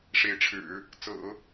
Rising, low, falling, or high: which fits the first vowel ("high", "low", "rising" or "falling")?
rising